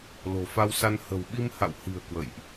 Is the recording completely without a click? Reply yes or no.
yes